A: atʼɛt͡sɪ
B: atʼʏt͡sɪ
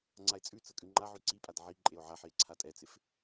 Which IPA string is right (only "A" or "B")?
A